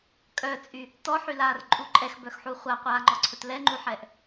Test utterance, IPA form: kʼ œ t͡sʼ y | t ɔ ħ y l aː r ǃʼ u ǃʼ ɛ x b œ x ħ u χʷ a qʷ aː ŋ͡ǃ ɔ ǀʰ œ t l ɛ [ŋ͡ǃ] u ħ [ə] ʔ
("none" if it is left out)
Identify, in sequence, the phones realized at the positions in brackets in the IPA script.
ŋ͡ǃ, ɛ

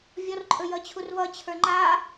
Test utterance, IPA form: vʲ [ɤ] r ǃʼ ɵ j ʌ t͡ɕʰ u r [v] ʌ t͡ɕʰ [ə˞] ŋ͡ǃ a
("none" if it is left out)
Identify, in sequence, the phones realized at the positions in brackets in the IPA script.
ɔ, v, ə˞

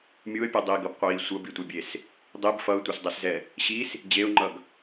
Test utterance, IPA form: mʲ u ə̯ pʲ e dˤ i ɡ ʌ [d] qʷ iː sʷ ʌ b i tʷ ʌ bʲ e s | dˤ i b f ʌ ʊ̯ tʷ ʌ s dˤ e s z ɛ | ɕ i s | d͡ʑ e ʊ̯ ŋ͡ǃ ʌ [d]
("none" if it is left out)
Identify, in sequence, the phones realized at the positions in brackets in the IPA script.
b, ɡ

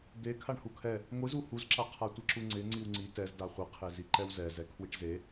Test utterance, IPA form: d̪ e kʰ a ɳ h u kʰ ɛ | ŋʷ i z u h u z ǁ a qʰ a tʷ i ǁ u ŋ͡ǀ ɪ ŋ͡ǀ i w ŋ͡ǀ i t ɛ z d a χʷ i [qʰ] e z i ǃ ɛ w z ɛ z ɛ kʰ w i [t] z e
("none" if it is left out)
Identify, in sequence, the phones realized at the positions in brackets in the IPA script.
qʰ, ʈ

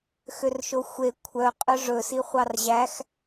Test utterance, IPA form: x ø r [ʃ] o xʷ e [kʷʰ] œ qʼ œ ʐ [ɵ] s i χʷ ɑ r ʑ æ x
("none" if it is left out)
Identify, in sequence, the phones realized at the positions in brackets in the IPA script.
ʃ, kʷʰ, ɵ

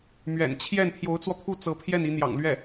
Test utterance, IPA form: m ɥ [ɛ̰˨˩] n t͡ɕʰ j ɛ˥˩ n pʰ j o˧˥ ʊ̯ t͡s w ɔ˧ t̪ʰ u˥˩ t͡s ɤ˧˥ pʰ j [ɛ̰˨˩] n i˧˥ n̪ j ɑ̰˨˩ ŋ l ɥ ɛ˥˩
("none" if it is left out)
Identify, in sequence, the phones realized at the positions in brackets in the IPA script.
ɛ̰˨˩, ɛ˥˩

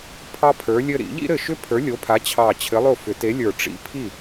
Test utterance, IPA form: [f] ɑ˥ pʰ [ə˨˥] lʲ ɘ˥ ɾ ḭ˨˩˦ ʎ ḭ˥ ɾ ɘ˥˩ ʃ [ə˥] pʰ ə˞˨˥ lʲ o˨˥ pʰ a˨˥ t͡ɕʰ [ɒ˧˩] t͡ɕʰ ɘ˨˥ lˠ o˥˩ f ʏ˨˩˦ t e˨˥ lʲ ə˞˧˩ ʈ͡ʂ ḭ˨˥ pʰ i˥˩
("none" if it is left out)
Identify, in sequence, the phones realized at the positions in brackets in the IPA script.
pʰ, ə˞˨˥, ʏ˥, ɑ˧˩

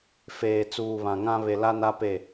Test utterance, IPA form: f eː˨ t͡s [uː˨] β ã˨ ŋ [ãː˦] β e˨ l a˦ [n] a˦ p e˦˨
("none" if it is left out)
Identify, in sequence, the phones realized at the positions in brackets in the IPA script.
uː˨, ã˦, n

